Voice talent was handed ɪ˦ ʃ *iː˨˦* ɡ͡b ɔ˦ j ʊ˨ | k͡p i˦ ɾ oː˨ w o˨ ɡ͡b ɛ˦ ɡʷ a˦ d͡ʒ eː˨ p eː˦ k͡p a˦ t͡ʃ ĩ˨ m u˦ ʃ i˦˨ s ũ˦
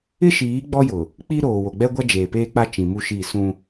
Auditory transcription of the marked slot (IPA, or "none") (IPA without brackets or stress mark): iː˨˦